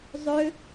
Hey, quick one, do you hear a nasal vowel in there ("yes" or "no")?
no